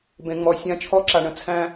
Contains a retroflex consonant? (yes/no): yes